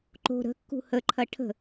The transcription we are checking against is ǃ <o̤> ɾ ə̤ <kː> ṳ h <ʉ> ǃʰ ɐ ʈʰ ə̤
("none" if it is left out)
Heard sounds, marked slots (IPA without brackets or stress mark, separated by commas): o̤, kː, ə